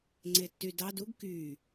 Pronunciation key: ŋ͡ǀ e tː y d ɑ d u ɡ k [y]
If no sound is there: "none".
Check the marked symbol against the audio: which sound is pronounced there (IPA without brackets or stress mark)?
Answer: y